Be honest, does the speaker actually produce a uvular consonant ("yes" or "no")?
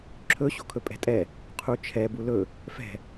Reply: yes